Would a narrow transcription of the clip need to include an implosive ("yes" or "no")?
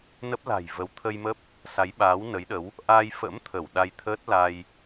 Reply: yes